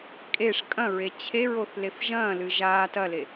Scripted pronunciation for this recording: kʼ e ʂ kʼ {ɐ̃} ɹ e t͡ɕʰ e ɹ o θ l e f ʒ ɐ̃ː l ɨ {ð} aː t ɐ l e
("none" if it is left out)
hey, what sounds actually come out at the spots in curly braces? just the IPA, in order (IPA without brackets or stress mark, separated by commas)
ɐ̃, ʒ